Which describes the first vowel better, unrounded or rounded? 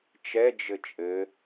unrounded